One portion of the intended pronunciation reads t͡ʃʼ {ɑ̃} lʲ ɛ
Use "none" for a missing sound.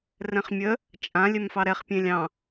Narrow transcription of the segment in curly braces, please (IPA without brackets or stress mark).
ã